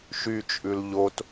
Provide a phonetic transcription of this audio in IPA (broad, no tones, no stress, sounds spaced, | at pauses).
ʃ y t͡ʃʼ ʉ l ʎ o t